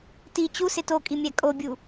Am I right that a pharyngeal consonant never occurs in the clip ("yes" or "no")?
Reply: yes